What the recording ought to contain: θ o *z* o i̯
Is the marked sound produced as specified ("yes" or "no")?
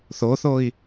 no